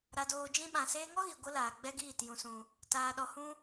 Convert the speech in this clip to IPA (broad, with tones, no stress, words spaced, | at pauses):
ɾa˨doː˨d͡ʒĩ˧ ɓã˨seː˧ŋɔ˦ɣi˨ ɡʷə˦laː˨ɡ͡bɛ˦ɡiː˦˨t jũ˨sũ˨ | taː˧ɗɔ˧hũ˦